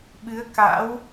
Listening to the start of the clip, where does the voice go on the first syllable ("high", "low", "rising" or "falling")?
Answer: rising